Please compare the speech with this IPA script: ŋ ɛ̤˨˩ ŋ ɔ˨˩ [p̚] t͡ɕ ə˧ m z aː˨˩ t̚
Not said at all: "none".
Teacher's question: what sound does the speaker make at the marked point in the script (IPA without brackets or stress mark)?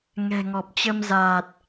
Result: p̚